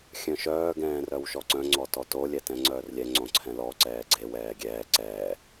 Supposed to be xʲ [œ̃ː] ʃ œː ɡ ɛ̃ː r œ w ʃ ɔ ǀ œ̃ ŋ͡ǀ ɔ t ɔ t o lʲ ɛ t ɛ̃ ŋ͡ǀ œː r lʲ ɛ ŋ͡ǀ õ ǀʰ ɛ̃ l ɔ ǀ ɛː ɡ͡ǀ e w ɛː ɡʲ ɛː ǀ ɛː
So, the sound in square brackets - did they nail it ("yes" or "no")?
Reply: no